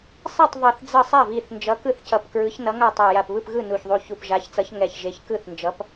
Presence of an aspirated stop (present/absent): absent